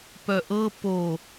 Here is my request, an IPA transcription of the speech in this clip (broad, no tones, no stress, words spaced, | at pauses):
pœʔɤ po